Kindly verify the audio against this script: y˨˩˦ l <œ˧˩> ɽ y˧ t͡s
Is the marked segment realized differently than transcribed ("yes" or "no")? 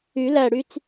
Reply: yes